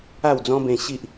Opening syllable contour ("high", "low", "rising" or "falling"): falling